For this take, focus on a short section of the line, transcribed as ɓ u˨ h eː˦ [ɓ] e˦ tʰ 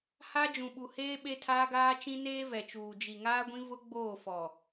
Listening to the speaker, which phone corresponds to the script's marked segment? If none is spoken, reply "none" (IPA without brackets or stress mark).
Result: ɓ